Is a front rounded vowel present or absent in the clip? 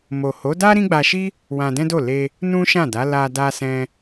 absent